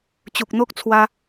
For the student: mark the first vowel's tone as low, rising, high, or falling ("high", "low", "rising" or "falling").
low